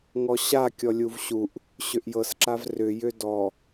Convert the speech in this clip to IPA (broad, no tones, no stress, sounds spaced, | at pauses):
ŋ ɔ ɕ a kʲ ɔ lʲ u v ɕ u ʔ | ɕ ʏ ʔ j ɤ s ǁ a v r ʏ j ʏ d ɔ